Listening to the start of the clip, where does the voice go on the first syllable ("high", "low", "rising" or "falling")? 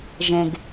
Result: low